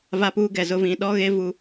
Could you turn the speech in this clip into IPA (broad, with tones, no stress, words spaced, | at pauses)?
va˦puː˦ɡɛ˨zʊ˦ vĩ˨ɗɔ˦ɣe˦ vu˦